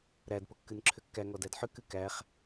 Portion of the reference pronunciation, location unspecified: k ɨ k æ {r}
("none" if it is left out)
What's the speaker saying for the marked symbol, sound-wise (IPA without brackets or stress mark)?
χ